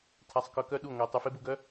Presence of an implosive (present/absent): present